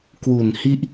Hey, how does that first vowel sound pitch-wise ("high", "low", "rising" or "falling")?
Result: low